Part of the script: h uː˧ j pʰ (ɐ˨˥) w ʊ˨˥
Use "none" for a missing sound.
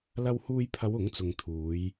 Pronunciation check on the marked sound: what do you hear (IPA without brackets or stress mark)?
ɐ˨˧